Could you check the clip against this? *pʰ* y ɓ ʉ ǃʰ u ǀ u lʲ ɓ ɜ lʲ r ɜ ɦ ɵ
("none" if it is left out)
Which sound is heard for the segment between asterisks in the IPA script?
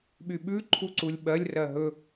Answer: ɓ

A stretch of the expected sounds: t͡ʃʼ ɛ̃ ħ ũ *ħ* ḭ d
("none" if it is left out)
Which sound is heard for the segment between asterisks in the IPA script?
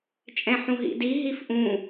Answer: ɦ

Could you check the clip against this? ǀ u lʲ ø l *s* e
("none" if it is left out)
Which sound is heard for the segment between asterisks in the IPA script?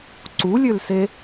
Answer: s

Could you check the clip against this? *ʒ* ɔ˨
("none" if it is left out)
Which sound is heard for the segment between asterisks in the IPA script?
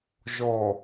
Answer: ʒ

